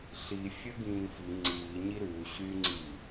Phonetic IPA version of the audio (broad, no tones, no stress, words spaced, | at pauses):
ɬi fʲə ɡĩːfi ŋ͡ǀiːɲi ɾʉː ɕyŋ͡ǀiː